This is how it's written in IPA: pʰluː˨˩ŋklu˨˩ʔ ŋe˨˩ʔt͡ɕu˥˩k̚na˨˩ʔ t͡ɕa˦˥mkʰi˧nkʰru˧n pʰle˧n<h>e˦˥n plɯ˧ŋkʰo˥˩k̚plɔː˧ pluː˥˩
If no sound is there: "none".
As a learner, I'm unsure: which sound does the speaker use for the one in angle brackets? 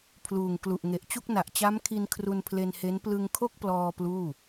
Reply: h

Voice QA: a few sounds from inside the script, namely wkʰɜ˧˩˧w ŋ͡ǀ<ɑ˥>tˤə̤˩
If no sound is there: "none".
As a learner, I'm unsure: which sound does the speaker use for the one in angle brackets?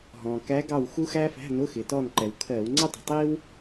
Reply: ʌ˥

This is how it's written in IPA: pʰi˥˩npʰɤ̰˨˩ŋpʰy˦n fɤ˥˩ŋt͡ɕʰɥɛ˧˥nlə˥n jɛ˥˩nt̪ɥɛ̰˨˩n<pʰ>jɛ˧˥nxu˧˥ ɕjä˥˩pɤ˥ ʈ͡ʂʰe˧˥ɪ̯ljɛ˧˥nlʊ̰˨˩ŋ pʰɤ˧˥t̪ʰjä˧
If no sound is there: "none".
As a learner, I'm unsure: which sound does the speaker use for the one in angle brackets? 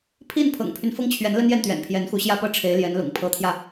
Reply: pʰ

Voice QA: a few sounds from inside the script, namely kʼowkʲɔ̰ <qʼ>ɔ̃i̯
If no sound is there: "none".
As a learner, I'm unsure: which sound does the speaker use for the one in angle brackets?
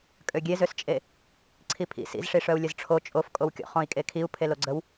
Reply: χ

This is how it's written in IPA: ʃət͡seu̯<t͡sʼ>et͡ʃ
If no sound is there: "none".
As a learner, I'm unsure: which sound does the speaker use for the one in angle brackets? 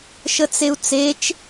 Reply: t͡s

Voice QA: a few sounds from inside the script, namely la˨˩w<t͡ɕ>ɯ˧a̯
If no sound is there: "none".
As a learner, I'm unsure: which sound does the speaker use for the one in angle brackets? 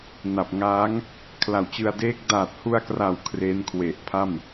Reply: t͡ɕ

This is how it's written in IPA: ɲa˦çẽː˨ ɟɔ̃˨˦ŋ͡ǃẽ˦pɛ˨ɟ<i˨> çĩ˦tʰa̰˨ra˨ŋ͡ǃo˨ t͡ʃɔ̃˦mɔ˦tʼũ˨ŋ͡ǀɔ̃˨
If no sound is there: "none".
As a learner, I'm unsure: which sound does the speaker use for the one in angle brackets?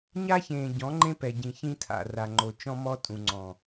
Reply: ĩ˨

